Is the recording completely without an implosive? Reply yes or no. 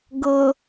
yes